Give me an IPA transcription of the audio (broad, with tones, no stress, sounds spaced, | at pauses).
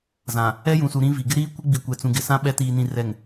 z ã˨ | ɛ˦ j ũ˨ s u˨ ɾ ĩ˦ v i˨ ɡ ɪ˦ ɾ iː˦ kʷ ɪ˦ ɡ͡b i˨ kʷ ɛ˨ t͡s ũ˨ ɡ ɪ˨ s ã˦ ɓ ɛ˨˦ t iː˨ n ĩ˨ r ɛ˨ ŋ